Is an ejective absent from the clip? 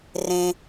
yes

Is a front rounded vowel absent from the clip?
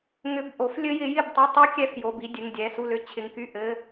no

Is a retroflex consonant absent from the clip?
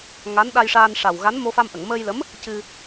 no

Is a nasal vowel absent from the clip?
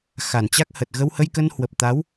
yes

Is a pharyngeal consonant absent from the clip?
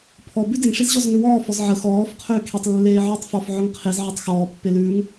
no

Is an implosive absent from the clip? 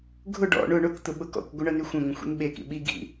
no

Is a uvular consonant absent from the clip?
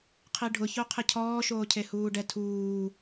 no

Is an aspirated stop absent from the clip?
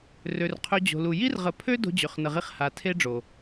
no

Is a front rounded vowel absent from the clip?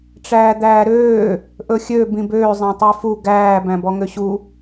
no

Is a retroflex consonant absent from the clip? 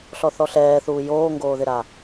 yes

